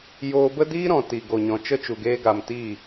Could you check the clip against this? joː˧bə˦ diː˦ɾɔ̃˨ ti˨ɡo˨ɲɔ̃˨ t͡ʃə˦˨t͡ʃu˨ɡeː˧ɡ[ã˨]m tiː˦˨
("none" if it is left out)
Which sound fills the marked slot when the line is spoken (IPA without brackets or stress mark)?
a˨